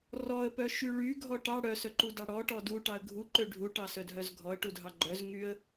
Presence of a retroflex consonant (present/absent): present